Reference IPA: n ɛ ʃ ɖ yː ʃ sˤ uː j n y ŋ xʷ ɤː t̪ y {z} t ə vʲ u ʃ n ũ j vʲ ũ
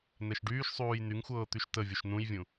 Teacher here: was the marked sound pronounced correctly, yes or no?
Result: no